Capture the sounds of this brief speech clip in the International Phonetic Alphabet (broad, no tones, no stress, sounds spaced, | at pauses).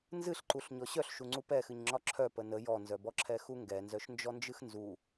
n z ɨ ɬ ǃ u ɬ ɲ ɔ ɕ œ ɬ ʃ u ŋ͡ǀ u p ɛ x ɨ ɲ ŋ͡ǁ ɒ ǁʰ œ p ə n ə j ɔ n z œ b ɔ ǁʰ ɛ x u ŋ ɡ ɛ n z œ ʃ n d͡ʒ ɔ n d͡ʒ ɨ x n z u